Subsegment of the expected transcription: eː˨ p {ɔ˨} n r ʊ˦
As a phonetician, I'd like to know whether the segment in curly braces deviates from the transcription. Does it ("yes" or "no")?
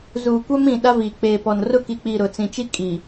no